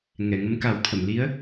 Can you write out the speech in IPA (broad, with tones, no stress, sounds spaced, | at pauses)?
ŋ ɛ˨˩˨ ŋ ə˧˥ m k a˨˩˦ w t̪ʰ ə˨˩˨ m l i˧˥ ə̯